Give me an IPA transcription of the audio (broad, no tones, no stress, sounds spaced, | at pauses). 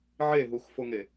ʕ e ɦ u x f o ŋ e